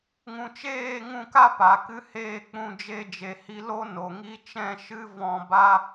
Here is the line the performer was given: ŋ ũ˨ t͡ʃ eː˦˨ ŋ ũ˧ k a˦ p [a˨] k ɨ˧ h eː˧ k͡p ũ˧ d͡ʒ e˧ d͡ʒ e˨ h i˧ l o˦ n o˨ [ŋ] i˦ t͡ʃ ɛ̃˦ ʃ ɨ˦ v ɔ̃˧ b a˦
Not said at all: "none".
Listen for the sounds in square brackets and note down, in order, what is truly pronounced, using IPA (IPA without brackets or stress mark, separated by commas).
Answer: a˨, ŋ